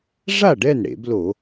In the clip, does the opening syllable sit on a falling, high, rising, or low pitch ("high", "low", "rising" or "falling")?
falling